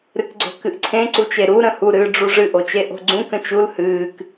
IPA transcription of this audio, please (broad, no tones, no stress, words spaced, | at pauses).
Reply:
ɾɨkɡ͡ǀo̤kɨʔǀʰẽ ǀut͡ʃeɾu ɾə̃hu ɾɨːɖ͡ʐuʐɨ ʔot͡ʃeʔo̤ɡ͡ǀũ kə̃t͡ʃul hɨːk